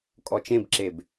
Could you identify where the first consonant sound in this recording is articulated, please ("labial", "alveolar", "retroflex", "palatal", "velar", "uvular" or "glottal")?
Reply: velar